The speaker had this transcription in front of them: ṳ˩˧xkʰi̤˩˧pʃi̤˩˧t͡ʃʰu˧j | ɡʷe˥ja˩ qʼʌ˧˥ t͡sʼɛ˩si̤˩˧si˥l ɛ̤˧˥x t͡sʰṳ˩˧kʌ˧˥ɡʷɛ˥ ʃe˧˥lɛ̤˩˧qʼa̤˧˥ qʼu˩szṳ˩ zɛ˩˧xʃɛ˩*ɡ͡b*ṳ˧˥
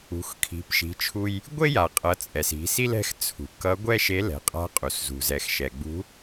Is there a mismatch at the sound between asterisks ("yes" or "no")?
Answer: no